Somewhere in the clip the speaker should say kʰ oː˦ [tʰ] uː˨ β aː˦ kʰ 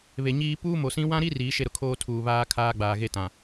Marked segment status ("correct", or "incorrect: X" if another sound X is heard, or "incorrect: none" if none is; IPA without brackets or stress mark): correct